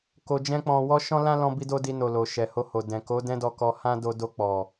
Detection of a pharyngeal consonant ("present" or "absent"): absent